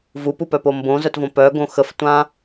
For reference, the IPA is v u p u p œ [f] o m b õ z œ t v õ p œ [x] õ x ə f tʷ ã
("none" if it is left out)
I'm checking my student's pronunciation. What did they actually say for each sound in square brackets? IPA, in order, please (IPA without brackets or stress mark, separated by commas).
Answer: p, ɡ